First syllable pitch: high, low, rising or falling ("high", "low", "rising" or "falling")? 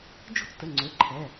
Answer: falling